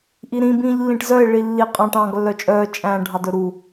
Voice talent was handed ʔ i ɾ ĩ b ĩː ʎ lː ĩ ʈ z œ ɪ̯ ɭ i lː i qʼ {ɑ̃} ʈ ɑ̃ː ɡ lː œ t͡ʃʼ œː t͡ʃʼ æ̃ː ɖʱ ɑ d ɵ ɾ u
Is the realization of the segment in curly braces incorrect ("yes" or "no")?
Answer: no